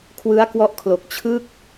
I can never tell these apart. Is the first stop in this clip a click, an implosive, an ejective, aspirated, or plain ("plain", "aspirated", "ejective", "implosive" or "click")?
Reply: aspirated